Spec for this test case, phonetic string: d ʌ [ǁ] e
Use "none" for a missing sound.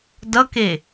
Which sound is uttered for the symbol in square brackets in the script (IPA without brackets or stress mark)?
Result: k